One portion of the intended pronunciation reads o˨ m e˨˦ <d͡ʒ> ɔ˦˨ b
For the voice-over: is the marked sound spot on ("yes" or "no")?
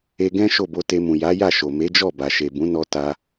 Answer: yes